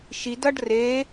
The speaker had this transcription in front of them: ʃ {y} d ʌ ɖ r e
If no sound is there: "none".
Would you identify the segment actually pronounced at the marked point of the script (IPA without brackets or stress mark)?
i